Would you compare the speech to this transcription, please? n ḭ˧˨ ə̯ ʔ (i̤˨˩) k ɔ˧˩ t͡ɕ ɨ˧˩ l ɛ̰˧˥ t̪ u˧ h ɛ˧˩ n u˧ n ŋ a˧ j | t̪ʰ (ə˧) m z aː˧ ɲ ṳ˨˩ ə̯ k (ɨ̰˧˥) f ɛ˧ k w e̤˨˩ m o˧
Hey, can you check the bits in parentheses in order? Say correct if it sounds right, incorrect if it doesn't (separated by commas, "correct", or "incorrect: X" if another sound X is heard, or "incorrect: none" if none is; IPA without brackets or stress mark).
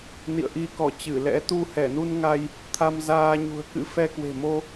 incorrect: i˧, incorrect: a˧, correct